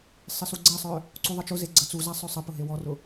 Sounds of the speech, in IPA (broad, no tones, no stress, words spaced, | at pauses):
sˤɪsuɡ͡ǀɛsˤœ | ǀuðˤət͡ʃʊze ɡ͡ǀət͡suza sˤœsˤəpʊ ɦewɔrʊ